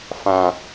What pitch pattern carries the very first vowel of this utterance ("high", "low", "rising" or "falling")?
low